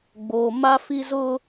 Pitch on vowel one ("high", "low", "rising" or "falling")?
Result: low